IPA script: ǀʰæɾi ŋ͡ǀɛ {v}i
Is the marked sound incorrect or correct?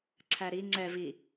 correct